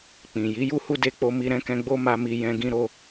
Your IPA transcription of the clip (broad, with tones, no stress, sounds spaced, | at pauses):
k͡p ĩ˨ j i˨˦ j u˦ h u˦ d e˧ k͡p o˧ m i˧ ɾ ɛ̃˦ k ɛ̃˧ ɡ͡b o˦ m a˧ m i˧ j ɛ̃˦ ɡ ĩ˧ ɾ o˧